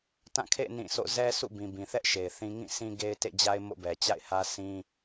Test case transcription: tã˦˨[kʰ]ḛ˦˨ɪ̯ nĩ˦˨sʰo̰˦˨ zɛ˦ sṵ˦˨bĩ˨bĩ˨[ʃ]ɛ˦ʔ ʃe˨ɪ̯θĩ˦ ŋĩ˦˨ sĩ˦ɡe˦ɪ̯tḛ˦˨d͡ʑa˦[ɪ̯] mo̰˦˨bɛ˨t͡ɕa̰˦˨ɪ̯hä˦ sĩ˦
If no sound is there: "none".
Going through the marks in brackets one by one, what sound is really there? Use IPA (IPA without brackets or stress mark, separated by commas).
kʰ, θ, ɪ̯